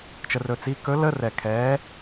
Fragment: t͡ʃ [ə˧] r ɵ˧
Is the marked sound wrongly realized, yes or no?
no